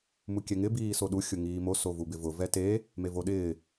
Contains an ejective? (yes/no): no